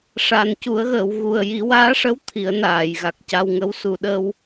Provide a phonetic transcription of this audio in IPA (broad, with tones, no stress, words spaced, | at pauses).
ʂa˨˩n cu˨˩˦ə̯ɣəː˨˩˨wɣu˨˩ə̯ ji˨˩˦waː˧˥ʂə˧˥w t̪ʰi˨˩˦ə̯naː˨˩˨jɣa˨˩k̚ca˧w ŋə˧˥w su˨˩˨ɗə˧w